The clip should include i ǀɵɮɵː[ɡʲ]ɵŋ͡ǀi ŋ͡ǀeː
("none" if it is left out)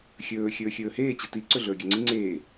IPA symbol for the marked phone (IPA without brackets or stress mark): ɡʲ